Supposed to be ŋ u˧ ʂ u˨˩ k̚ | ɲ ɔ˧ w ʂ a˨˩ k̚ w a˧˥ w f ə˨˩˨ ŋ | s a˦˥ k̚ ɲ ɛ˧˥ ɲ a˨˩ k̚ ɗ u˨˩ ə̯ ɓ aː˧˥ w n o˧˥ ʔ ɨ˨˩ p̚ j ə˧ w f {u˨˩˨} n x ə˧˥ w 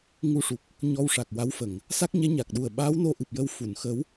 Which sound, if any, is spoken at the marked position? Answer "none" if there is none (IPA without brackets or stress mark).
u˨˩˨